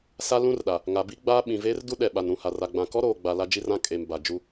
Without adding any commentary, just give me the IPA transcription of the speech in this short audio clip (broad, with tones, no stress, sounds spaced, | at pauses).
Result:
s a˦ l ũ˦ r ɗ a˨ | ŋ a˨ b i˦ ɡ͡b aː˦ ɓ ĩ˨ v eː˦ r d u˦ ɗ ɛ˨ ɓ a˨ n ɾ ũ˨ h a˨ r a˨ ɡ͡b ã˨ k ɔ˦ ɾ oː˨ ɡ͡b a˨ l a˦ d͡ʒ i˦ r ã˦ kʼ e˨ m b a˨ d͡ʒ u˦